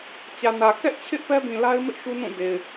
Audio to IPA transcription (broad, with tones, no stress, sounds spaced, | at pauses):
t͡ɕ ä˨ n ä˨ k ɛ˦ ʔ t͡ɕʰ ɪ˦ ʔ p ɛ˦ b ĩ˨ l a˦ ɪ̯ m ɪ˦ ʔ ʃ u˦ n ũ˦˨ d e˨ ɪ̯